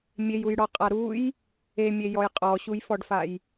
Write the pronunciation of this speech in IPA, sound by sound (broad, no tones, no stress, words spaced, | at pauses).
mʲejujɽɔqʼa ɾuj | emʲejɔj qʼɔɕujfɔɖfaj